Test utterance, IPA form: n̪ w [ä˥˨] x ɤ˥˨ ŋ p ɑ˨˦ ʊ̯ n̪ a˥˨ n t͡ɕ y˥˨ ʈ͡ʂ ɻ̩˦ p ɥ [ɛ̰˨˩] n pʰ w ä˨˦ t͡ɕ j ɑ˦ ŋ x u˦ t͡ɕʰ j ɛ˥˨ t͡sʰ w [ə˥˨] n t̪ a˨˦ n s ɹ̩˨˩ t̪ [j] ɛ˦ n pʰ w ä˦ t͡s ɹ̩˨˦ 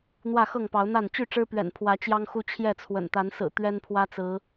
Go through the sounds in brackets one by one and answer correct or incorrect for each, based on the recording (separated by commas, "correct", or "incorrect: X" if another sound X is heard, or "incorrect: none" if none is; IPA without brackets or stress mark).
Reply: correct, correct, incorrect: ə̰˨˩, incorrect: ɥ